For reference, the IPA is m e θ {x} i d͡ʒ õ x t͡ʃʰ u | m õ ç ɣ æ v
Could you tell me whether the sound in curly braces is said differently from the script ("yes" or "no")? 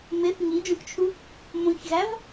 yes